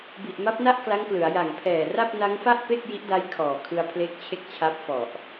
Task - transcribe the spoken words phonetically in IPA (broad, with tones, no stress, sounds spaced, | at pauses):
b i˨˩ ʔ m a˦˥ p̚ n a˥˩ ʔ k l a˦˥ ŋ k l ɯ˩˦ a̯ j a˨˩ ŋ pʰ ɛː˨˩ r a˥˩ p̚ n a˦˥ ŋ f a˥˩ ʔ p e˥˩ k̚ j i˦˥ ʔ d a˦˥ j kʰ ɔː˨˩ kʰ ɯ˧ a̯ pʰ l e˦˥ k̚ t͡ɕʰ e˥˩ k̚ t͡ɕʰ a˦˥ p̚ f ɔ˨˩ ʔ